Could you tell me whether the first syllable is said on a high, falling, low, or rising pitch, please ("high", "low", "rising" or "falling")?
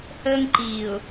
high